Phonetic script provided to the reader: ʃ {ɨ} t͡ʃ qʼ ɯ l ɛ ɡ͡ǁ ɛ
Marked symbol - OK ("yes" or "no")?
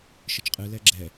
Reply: yes